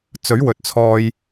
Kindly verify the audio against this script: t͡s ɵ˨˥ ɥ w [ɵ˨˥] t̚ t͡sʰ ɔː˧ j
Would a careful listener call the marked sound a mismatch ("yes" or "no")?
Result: yes